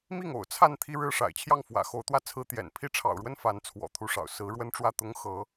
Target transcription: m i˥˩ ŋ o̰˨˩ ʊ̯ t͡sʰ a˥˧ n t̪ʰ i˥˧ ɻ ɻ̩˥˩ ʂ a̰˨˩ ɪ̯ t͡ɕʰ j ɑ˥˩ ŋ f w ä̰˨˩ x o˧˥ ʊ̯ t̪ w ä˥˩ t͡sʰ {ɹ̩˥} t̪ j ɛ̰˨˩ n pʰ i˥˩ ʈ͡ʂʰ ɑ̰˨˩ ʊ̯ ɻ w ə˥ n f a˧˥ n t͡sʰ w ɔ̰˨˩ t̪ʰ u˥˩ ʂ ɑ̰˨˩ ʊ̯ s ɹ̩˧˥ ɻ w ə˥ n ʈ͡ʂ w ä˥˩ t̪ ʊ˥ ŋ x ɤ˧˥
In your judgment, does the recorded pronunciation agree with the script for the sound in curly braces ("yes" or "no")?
yes